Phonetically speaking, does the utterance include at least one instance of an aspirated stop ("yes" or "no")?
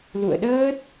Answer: no